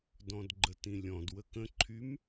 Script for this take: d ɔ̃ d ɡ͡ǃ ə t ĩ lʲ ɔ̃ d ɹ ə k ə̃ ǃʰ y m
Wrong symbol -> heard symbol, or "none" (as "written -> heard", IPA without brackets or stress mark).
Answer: ɹ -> w